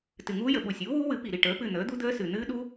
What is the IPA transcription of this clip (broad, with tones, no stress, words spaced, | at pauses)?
tɨ˨˩ŋuː˦˥jə˨˩ ɓu˨˩sʲuː˩˥wuː˦˥ wɨ˩˥pi˨˩ɾi˦˨ ʈəː˩˥pɨ˦˨ n̪əː˩˥d̪u˦˥d̪əː˦˥sɨ˨˩ n̪ɨː˦˥ɗu˦˥